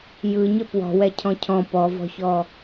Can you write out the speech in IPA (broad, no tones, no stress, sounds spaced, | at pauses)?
j ɯ ɲ ɘ p w ɔ̤ w ɛ cʰ ɔ̃ cʰ ɔ̃ p ɔ v ɔ̤ ç ɔ